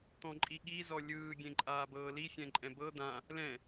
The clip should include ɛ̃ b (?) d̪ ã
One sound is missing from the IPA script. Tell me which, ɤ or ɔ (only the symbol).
ɤ